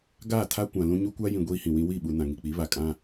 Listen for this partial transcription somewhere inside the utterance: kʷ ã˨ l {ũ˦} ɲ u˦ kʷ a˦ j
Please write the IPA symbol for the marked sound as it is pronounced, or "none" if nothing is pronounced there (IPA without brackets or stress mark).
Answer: ũ˦